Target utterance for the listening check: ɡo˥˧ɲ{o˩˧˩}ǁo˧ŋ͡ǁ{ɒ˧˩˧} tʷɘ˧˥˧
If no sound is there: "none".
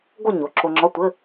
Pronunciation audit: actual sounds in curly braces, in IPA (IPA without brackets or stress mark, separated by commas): o˩˧˩, ɒ˧˥˧